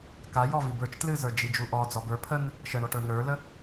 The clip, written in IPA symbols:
kajɔ vibə˞t͡ʃ tlɨzə˞ d͡ʒid͡ʒuʔɔ d͡zɔbə˞ pʰən | ʃəɳɔʈə˞ nə˞lə

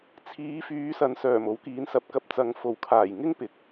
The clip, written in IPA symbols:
t͡sʰiː˨˧fyː˨˧ sɐ˨˧n sœː˨˩mo˨˥wkiː˨˥n sɐ˨p̚kɐ˧p̚ t͡sɐ˨ŋ fo˨˩w kʰaː˨˩j ŋɪ˥ŋpɪ˨˥k̚

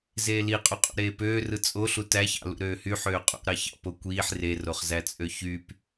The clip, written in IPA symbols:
zeːliqʼuqʼṵ ɾeːpøːrɯ t͡sʼo ɬutæçɑ̰ lṵɾøːhy ħøːqʼṵɾɑçɑ̰ pokʷiːħ re roχzæt͡sʼøçyp

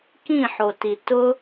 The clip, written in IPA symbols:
kĩħoti tʊ

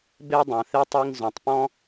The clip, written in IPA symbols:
be˧dˤɐ̃˩θe˧tˤ i˧ŋzõ˩tˤpɔ̃˥

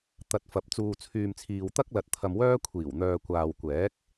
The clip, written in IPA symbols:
t̪ɐ˨t̚fɐ˨˥p̚ t͡suː˧t͡sʰyː˧mt͡sʰiː˧w t̪ɐ˥k̚lɐ˨t̚ t̪ʰɐ˧mwœː˥ kʷʰiː˨˩w n̪œː˨kʷaː˨wkʷɛː˨˥k̚

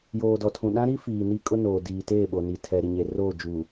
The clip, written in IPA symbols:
joː˨dɔ˨tʰũ˨ ɗã˦ɾi˦fiː˨ ni˦kʼʊ˦noː˨ diː˨teː˦˨ɓo˨ ni˨tʰɛ˨ ɾi˨ɲe˨ roː˦˨d͡ʒuː˨

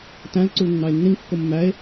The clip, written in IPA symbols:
tæ̃l ǀulnːɑe̯nːĩŋkːo mːæe̯

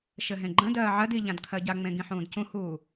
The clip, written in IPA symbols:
ʃɘɦẽɡ͡ǃə̃dɜː ʕɜdi ʎãdkʰɜɟaŋ͡mẽ ɡĩħũːdcũhuː

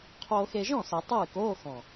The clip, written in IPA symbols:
qʰoː˧xe˧ʒɔ̃˥˩sɛ˨˩˦ tˤɨː˥˩koː˧˥˧xɔ̃˨˩

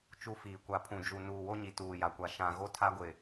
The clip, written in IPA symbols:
t͡ʃu˦fiː˨ kʷa˨ pʰũ˨d͡ʒu˨ nuː˨wo˦ɲi˨ tuː˨ja˨kʷa˨ ʃã˨ɣo˦tʰa˦ɡʷɪ˨

